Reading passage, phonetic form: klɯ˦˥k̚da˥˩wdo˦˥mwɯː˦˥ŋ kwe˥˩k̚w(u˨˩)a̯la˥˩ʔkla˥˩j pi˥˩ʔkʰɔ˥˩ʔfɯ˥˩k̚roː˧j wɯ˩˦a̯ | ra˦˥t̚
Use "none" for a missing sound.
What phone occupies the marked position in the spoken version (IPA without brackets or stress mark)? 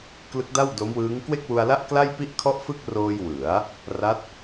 u˧